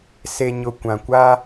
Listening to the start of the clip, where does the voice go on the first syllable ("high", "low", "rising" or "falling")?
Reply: low